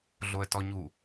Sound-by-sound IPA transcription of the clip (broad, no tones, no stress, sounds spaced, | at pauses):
ɮ o ə̯ t ɔ ɲ u